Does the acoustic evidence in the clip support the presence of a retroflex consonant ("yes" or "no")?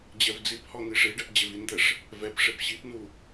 yes